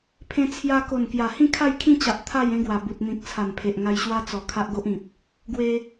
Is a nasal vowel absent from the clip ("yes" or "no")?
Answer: no